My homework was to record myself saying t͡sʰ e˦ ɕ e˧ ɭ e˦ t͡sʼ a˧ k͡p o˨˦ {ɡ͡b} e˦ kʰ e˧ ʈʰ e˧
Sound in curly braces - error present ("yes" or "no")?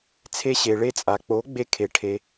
no